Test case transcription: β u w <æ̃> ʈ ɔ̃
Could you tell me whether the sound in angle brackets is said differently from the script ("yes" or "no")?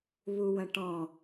yes